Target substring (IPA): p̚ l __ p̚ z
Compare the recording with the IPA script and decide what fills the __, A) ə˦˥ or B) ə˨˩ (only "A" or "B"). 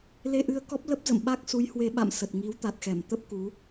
A